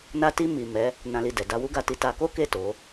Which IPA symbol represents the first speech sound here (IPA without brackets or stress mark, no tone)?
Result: n